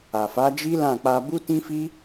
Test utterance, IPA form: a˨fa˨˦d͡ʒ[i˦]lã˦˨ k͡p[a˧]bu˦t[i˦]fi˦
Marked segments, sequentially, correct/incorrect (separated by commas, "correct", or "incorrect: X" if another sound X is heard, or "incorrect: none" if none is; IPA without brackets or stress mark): correct, correct, incorrect: ĩ˦